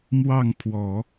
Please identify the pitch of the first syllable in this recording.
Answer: falling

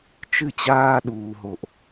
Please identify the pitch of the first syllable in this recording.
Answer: falling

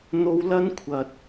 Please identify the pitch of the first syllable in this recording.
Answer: high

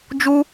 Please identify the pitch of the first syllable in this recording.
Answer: high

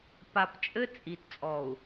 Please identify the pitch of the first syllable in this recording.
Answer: low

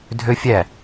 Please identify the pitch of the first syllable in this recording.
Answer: high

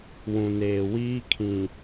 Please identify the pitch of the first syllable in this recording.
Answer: low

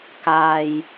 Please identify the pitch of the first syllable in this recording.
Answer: low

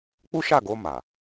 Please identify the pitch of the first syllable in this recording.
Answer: high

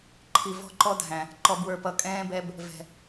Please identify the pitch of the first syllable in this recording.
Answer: low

